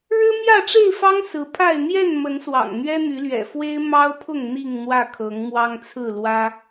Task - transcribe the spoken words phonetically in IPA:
ɻ ɻ̩˦ m j ä˥˨ ʈ͡ʂ e˥˨ ɪ̯ f ɑ˦ ŋ s ɹ̩˨˦ pʰ a˥˨ ɪ̯ n̪ j ɛ˥˨ n m ə˨˦ n s w ɑ̰˨˩ ŋ n̪ ɥ ɛ˦ n̪ y˨˦ l ɥ ɛ̰˨˩ f w e˦ ɪ̯ m ɑ˦ ʊ̯ pʰ ʊ˥˨ ŋ n̪ i˥˨ ŋ n̪ w ä˥˨ kʰ ɤ˨˦ ŋ m w ɑ˦ ŋ t͡sʰ ɹ̩˥˨ l w ä˦

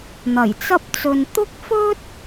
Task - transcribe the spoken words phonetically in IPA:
n̪ ɐ˨˩ j t͡s ɐ˥ p̚ t͡s ɵ˧ n t̪ ʊ˥ k̚ f ɵ˥ t̚

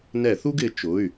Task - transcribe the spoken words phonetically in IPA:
n ɛ˧˩˧ θ u˥ ɡ ɪ˨˦ t͡ʃ ʊ˩˧˩ y̯

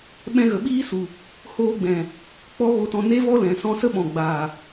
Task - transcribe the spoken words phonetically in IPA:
ɓ ɛ̃˧ ɣ ə˨ ɓ iː˦ s u˨ | h oː˧ ɡ͡b ɛ̃˨ | k͡p ɔ˦ ɣ o˧ t ɔ̃˧ n e˦ v ɔ˦ l ɛ̃˨ s ɔ̃˧ s ə˦ ɓ ɔ̃˨ ɡ͡b aː˨

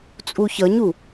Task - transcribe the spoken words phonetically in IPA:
t͡sʼ u ç ʌ ɲ u

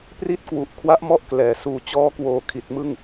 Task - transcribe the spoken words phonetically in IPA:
p r i˥˩ t̚ k w u˨˩ ʔ kʰ w a˦˥ ʔ m ɔ˥˩ ʔ k l ɛː˨˩ s uː˨˩ t͡ɕ ɔː˦˥ k w oː˨˩ kʰ i˨˩ t̚ m ɯ˥˩ ŋ

